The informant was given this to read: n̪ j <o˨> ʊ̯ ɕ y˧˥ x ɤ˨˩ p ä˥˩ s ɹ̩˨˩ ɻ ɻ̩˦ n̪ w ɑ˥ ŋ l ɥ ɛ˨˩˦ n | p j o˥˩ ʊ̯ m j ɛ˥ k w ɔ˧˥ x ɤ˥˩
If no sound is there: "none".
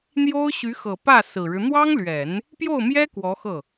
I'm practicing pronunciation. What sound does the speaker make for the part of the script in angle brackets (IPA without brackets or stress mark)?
o˥